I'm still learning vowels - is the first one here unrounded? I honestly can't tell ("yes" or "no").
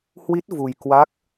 yes